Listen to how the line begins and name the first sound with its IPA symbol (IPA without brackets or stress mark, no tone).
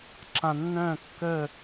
ǁ